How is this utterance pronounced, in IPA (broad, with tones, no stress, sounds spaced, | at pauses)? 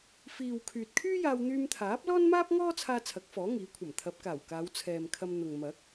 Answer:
f iː˨ w kʰ yː˨ t̚ kʰ yː˥ j aː˧ w n̪ yː˧ m t̪ʰ aː˨˥ p̚ l ɔː˥ n m aː˥ p̚ ŋ ɔː˥ t͡sʰ aː˧ t͡sʰ ɐ˨˥ k̚ f ɔː˨˥ ŋ iː˨˥ kʷʰ ɐ˨˩ m t̪ʰ ɐ˨˥ p̚ k aː˨˩ w k aː˨˧ w t͡sʰ ɛː˨ m kʰ ɐ˧ m n̪ ʊ˨ ŋ m ɐ˨˥ k̚